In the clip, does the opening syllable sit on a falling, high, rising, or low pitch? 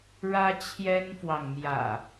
high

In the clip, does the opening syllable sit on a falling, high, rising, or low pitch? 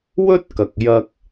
high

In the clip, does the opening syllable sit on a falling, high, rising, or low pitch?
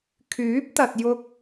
rising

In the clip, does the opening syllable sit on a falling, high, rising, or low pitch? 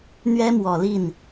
high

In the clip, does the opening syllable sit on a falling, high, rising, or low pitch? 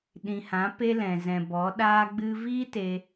low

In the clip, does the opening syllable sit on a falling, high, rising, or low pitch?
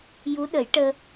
rising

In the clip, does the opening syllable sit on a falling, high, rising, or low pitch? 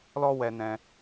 high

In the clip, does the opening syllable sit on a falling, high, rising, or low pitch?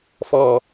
falling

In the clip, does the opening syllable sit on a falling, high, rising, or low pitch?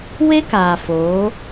high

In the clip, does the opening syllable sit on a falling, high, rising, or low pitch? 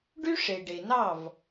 high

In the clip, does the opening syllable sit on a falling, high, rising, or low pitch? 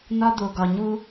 high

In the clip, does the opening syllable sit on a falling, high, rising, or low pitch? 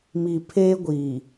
low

